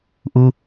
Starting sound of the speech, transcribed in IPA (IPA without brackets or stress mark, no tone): ʔ